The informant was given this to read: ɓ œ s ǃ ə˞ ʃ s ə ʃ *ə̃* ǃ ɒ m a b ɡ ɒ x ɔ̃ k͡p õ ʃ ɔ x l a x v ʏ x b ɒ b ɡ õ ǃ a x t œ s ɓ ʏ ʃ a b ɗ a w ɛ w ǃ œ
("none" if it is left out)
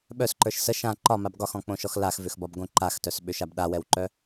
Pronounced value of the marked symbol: ã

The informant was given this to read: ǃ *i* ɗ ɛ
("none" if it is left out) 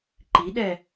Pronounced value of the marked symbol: i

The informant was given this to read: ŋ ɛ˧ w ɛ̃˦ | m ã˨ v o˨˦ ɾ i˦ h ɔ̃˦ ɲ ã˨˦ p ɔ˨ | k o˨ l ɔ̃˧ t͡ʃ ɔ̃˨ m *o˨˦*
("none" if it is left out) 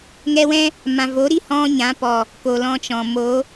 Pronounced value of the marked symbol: o˨˦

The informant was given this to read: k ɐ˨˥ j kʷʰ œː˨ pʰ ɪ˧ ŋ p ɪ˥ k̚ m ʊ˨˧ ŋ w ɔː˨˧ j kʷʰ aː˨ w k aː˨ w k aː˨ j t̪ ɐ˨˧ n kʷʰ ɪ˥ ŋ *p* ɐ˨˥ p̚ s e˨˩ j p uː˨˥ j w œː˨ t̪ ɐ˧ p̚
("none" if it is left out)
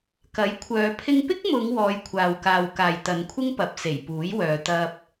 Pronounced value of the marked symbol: p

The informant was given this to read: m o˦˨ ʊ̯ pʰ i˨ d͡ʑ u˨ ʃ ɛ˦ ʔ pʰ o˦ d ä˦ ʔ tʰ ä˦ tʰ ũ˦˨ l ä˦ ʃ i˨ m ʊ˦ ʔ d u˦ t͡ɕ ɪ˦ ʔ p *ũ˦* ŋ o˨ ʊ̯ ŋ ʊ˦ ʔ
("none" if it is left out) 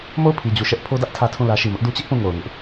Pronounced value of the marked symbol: ũ˦˨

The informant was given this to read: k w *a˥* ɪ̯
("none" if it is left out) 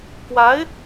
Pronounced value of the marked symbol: a˧˥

